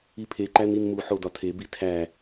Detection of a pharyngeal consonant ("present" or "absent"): present